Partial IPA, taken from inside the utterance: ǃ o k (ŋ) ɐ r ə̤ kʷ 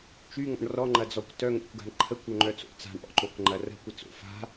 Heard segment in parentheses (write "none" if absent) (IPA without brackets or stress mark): ŋ͡ǃ